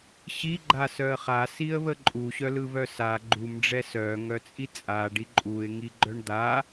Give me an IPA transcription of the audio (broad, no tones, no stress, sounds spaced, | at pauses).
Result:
ɕ i ɡ͡ǃ a s œ ə̯ χ a s i ə̯ β ə ǃʼ u ɕ œ l ɯ β œ s a ɡ͡ǃ u m ɖ͡ʐ ɛ s œ ŋ œ t͡sʼ i t͡sʼ a ɖ i ǃʼ u ɪ̯ ŋ i ɡ͡ǃ œ ɳ d̪ a